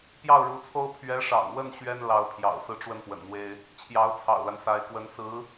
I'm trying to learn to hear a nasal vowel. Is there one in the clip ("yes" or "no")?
no